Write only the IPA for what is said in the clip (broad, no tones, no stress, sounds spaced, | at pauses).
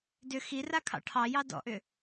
d ʏ x i r a kʰ ɑ̰ ʈʰ ɑ j ɑ d ɔ̰ ʔ ʏ